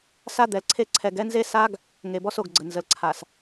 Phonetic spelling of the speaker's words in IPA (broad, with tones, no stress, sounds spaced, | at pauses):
s a˦ d̪ ɛ˨ l ǀʰ e˦ ǀʰ ɛ˨ ɡ ɛ˦ n z e˦ s a˦ ɡ | ŋ e˨ b ɔ˦ s o˨ ɡ ɡ͡ǀ ə˨ n z ə˨ l ǀʰ a˨ s